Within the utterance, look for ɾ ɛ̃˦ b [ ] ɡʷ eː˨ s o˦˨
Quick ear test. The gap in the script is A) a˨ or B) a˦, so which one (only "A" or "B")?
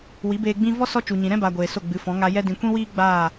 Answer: A